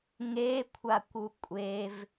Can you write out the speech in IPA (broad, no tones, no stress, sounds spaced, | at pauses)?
ŋ e kʷʰ a kʷ u kʷʼ e v